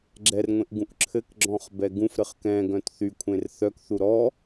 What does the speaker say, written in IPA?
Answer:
ɡ͡ǁɛrŋʷẽʔɡũʔ ǁʰɘkɡ͡ǁɔ̃χbɛ ɡũfɾɘχ kɛ̃ɡœ̃t θykʷʰẽr θœkθu ɾɔ

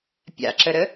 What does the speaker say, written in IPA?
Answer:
pʲa̰ǁəɾə

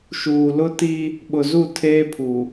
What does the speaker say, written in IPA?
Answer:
ʃuː˨lʊ˦ ti˦ | ɓʊ˨zu˦˨ tʰeː˦pʰu˨

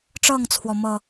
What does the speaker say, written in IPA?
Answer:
ʈ͡ʂɤ˥˨ŋt͡sʰwɔ˩ mɤ˨˩

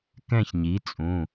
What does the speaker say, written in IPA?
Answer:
kɛ̃˥˧çɲi˩˥t͡sʼũ˩˧˩

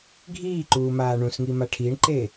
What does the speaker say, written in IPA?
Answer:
ɡʱiːǃuːmaː ɳũsŋima ʈʰiɳǃe

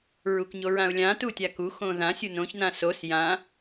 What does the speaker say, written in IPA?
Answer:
ɹukɲoɹãʊ̯lʲã tutʲaku xõðã sʲunõç nãsos jã

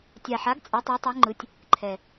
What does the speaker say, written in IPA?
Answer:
tʲa˨˩ħa˨˥ɡ t͡sʼɛ˨˥tˤɛ˨˥tˤɛ˨˥ŋ͡ǃɯ˨˥tʲ | ǃʰɛ˨˩

